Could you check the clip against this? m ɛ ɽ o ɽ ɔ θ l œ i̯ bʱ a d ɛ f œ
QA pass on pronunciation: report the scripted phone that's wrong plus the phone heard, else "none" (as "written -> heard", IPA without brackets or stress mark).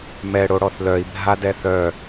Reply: f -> θ